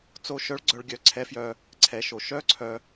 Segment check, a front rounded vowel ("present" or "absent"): present